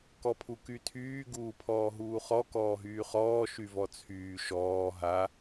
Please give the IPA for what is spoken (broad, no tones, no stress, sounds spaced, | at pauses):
k ɔ pʰ u k y tʰ yː ɡ uː pʰ ɔː ɦ uː χ ɔ k ɔː ɦ yː χ ɔː ʃ y v ɔ t͡sʰ yː ʃ ɔː ɦ a